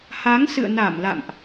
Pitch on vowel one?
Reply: rising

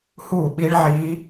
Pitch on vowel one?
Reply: falling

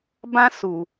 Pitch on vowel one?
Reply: high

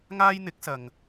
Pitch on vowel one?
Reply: high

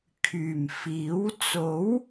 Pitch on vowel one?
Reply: low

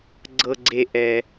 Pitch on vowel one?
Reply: high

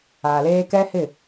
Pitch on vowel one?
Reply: low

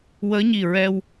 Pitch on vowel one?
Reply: rising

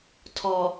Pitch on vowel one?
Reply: low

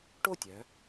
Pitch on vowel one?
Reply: falling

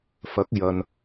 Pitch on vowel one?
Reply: rising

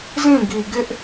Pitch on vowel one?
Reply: falling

